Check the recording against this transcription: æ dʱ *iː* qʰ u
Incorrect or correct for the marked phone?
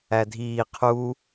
correct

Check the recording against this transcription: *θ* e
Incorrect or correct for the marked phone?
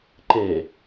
incorrect: ǃ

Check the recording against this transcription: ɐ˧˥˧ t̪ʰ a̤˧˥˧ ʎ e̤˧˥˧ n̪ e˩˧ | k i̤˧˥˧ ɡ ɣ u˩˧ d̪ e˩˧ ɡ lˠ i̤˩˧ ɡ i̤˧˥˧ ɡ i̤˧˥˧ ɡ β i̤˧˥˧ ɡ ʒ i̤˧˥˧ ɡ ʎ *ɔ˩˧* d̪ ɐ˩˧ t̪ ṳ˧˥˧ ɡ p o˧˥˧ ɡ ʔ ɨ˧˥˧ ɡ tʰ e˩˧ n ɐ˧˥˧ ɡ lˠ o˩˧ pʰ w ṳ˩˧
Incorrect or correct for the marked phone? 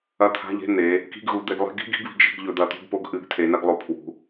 incorrect: ɵ˩˧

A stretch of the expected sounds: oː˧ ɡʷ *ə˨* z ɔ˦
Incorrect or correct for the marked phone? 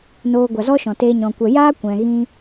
incorrect: a˨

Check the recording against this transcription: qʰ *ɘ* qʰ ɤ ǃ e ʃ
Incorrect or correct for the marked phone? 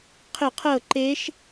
correct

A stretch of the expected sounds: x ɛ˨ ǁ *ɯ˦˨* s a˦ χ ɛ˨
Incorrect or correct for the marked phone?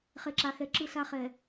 correct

